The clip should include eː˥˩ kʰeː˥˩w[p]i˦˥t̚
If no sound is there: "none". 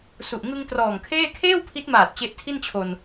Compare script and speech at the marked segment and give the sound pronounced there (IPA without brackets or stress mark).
pʰ